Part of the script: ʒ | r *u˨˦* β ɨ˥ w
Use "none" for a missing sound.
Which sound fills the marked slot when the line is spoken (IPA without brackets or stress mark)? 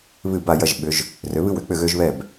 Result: ø˨˦